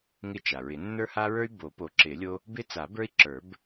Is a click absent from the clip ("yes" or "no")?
no